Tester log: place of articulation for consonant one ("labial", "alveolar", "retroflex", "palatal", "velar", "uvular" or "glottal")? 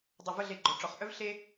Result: alveolar